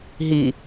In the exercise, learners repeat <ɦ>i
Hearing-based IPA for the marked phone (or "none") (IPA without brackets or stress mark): ɦ